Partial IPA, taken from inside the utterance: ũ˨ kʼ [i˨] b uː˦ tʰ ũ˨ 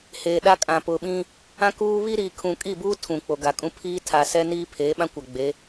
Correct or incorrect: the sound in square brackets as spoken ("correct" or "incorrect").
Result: incorrect